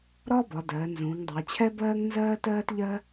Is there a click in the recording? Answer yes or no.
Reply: no